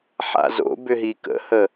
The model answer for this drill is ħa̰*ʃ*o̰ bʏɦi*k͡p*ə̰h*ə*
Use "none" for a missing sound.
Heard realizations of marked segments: z, k, ə

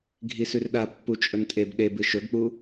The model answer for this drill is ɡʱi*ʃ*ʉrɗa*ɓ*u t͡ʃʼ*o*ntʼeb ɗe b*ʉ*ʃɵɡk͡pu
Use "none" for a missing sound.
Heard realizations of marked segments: s, pː, ɵ, ɨ

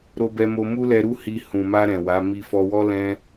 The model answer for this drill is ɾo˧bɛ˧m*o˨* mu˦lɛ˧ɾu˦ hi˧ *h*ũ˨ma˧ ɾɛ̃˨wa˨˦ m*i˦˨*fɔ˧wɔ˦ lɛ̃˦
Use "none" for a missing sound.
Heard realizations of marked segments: o˧, h, i˧

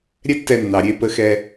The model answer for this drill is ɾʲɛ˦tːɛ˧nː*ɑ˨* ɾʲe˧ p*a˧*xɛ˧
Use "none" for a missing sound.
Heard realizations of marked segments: ɑ˨, ə˧

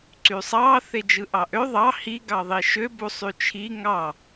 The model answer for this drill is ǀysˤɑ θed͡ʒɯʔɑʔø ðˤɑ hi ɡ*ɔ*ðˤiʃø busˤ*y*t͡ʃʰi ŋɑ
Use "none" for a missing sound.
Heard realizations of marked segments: ɑ, y

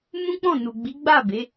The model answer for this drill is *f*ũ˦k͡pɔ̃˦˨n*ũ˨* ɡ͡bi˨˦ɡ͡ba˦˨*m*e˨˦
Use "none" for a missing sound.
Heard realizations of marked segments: m, u˨, b

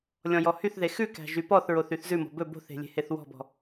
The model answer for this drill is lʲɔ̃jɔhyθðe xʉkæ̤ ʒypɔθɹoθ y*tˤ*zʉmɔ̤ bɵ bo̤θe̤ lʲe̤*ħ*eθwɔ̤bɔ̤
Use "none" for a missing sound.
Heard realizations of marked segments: θ, h

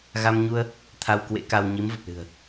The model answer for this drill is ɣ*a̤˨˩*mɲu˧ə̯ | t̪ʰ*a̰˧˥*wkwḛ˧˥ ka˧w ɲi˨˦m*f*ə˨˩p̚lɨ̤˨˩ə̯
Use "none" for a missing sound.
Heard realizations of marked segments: a˧, a˧, v

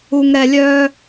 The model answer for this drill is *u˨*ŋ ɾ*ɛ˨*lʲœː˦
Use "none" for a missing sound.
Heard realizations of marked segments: u˨, ɛ˨

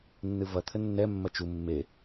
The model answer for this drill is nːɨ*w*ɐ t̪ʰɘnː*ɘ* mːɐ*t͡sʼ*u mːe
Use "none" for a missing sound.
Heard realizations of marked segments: v, ɛ, t͡ʃ

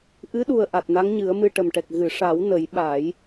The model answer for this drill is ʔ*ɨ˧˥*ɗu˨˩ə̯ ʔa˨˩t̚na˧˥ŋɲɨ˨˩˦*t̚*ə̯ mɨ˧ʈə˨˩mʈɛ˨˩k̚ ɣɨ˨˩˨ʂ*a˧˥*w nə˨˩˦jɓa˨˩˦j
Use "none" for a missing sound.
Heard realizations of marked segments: ɨ˧˥, none, a˨˩˦

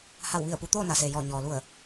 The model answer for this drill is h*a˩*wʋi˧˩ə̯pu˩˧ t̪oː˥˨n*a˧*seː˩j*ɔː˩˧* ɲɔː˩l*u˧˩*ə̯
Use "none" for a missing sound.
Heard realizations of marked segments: a˧˩, a˩, ɔː˧˩, u˧˩

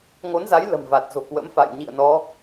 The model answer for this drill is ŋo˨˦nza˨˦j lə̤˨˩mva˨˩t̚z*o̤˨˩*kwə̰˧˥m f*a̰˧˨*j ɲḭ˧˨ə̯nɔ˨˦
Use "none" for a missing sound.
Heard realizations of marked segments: o̤˨˩, a̰˧˨

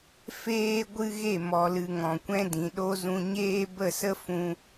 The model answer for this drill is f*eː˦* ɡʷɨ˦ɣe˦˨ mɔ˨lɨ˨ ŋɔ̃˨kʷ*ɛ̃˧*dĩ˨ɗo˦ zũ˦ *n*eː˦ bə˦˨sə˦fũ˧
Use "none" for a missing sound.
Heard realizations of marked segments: eː˦, ɛ̃˦, ɲ

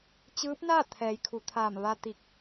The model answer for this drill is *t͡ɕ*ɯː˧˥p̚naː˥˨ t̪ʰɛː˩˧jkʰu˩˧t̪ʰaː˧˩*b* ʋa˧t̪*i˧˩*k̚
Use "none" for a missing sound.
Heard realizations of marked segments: t͡ɕ, m, i˧˩

